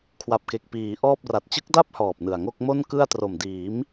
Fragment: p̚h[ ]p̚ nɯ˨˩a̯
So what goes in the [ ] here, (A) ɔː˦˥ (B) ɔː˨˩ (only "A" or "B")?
B